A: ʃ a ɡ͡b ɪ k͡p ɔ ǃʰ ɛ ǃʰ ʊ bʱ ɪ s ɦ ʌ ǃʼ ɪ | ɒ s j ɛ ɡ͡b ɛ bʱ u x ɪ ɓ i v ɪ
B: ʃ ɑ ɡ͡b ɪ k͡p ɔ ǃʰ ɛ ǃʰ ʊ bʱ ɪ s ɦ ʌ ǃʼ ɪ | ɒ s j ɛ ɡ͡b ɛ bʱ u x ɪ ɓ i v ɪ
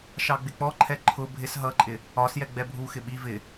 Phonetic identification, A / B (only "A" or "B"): B